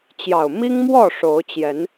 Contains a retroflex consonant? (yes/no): yes